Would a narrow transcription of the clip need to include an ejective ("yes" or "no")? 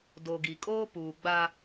yes